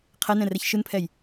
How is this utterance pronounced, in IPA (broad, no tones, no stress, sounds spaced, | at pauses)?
qʰ ɛ n ɛ̃ r ɛ ç ʃ ɯ n pʰ ɛ j